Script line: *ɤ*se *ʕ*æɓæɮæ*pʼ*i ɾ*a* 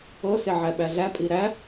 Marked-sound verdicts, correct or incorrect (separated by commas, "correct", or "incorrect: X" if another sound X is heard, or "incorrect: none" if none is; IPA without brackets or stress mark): correct, correct, correct, incorrect: æ